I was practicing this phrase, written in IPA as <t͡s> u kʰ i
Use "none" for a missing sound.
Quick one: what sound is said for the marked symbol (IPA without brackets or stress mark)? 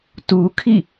t